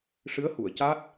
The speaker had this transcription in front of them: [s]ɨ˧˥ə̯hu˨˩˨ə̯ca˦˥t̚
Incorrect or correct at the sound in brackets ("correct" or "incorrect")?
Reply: incorrect